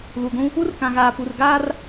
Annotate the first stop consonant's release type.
plain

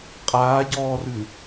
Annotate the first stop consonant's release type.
ejective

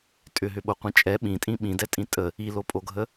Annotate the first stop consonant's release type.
ejective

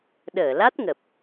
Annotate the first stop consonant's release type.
implosive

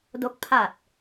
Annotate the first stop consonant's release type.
plain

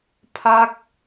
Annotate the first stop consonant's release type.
aspirated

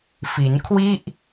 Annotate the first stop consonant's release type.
aspirated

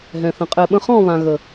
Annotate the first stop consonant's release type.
ejective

